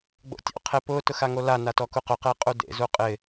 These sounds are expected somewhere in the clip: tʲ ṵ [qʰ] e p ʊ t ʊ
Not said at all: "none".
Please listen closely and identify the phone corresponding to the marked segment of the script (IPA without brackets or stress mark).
qʰ